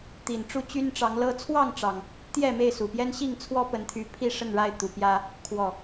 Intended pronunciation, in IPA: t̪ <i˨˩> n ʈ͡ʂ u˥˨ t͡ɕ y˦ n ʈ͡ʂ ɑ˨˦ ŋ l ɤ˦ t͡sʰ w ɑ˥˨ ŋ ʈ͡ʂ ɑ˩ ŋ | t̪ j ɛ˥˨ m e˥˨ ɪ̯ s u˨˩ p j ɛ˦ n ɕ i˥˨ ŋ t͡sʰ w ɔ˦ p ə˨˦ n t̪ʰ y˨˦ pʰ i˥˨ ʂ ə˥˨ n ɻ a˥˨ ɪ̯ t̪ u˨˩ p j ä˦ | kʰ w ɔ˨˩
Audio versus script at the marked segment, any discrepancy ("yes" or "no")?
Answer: no